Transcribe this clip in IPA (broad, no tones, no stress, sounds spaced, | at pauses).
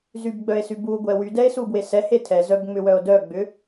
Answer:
z y b ɡ͡b œ e̯ s y b u ɡʷ ɛ w y d ɛ e̯ s u b w e s ɛ h e tʰ ɛ z œ b ŋ͡m ʏ w œ o̯ d œ ɡ͡b ʏ